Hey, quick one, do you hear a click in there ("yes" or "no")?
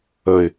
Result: no